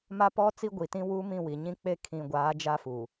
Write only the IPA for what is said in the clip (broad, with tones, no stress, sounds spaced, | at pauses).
m a˦ p ɔ˦ t͡s i˦ ɡʷ i˨ t ĩ˦ w uː˦ m ĩ˦˨ w i˨ ɲ ĩ˦ k͡p e˦ kʰ ĩ˨ ɡʷ aː˨˦ d͡ʒ a˦ f uː˨